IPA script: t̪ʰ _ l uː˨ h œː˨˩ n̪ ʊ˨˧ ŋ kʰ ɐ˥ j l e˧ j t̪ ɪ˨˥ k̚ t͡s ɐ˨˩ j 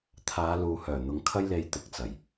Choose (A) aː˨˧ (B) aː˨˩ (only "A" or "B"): A